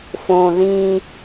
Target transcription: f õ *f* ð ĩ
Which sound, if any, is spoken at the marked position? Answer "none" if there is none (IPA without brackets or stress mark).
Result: none